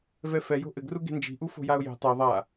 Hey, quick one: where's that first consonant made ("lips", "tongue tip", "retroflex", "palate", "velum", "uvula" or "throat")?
lips